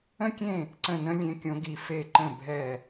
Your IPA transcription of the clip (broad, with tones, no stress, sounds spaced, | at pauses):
ə̃˦˥ kʲ ẽ˦˨ | ǀ ə̃˦˨ n ə̃˦˥ lʲ ẽ˦˥ kʲ õ˦˥ ɡ i˦˥ f e˦˨ ǃ ə̃˦˨ bʱ ɛ˦˨